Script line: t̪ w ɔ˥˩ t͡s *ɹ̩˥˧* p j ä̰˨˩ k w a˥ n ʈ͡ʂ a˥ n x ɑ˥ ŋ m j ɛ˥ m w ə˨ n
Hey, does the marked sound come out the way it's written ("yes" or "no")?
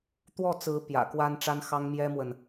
no